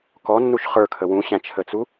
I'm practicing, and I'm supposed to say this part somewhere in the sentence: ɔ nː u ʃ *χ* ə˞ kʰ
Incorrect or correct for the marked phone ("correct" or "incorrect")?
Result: correct